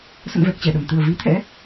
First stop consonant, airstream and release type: plain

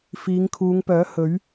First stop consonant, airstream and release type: aspirated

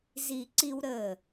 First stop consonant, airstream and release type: click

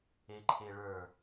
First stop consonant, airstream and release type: click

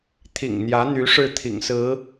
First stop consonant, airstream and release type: aspirated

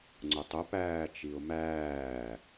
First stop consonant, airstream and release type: click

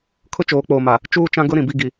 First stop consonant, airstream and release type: aspirated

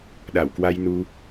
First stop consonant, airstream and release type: implosive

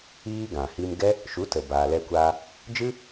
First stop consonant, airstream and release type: plain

